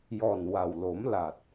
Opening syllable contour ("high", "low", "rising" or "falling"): low